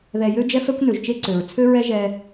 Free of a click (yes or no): no